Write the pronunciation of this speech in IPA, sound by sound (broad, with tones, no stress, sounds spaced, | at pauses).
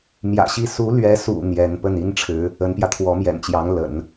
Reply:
m j ä̰˨˩ ɕ i˥˩ s u˧˥ l ɥ ɛ˧˥ s ṵ˨˩ n̪ j ɛ˧˥ n p ə˥˩ n i˥ n ʈ͡ʂʰ ɻ̩˧˥ | ə˧˥ n p j ä˧ t̪ʰ w ɔ˧˥ m j ɛ̰˨˩ n t͡ɕ j ɑ˧˥ ŋ l ə̰˨˩˦ n